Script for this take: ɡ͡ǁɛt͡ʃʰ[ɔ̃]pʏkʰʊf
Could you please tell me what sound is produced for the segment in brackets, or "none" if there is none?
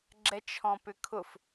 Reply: ɔ̃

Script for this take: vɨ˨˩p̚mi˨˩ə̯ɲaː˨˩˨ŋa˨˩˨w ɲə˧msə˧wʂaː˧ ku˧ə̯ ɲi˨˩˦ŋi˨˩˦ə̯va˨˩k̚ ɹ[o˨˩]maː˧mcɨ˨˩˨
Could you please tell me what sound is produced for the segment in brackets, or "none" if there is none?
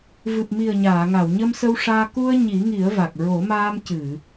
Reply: o˨˩˦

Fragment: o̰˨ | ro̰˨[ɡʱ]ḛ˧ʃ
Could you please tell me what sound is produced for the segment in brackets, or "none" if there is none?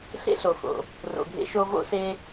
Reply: ɡʱ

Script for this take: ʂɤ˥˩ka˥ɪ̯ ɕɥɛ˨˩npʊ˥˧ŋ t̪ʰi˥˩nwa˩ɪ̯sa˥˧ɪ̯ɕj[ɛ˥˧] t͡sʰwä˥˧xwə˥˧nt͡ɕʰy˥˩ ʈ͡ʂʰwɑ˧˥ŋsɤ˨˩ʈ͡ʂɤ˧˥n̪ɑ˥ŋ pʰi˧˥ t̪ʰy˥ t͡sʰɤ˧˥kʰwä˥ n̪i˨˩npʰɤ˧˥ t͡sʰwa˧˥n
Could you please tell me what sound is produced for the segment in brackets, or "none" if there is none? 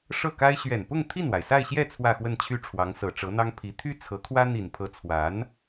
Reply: ɛ˥˧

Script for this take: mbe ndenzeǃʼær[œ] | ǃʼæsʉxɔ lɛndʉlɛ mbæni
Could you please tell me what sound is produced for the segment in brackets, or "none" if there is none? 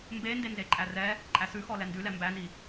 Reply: ɛ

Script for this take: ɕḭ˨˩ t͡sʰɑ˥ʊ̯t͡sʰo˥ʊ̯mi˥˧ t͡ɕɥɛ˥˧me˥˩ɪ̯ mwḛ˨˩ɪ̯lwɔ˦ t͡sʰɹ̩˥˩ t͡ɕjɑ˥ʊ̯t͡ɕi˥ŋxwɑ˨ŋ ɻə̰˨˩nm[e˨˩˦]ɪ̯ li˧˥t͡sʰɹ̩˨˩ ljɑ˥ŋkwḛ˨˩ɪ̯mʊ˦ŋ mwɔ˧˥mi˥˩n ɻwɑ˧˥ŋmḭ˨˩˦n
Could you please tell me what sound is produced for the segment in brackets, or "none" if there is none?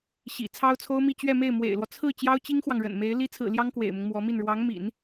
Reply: e˧˥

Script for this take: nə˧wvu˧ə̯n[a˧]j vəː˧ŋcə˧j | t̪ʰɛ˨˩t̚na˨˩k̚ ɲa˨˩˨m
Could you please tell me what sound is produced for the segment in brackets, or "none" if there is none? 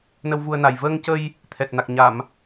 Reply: a˨˩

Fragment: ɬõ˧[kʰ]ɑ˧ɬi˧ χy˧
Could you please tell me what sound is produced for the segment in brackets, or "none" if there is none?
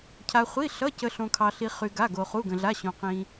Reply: kʰ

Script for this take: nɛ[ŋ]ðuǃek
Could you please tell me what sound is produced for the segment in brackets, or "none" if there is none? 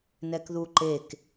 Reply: k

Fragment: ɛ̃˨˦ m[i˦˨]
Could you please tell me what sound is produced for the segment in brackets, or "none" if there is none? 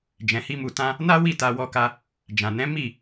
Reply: i˦˨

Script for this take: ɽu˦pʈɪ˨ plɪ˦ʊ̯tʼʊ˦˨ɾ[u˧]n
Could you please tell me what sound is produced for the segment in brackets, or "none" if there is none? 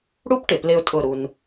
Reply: u˧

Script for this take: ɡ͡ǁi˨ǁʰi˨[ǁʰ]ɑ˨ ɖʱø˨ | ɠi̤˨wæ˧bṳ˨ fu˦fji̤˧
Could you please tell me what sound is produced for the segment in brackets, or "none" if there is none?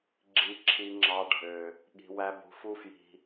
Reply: ŋ͡ǁ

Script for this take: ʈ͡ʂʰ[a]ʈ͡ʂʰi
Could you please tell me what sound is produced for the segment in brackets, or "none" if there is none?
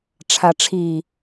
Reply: a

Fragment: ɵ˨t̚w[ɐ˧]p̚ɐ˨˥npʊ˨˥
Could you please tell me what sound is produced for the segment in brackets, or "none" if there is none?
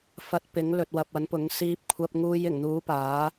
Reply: ɐ˨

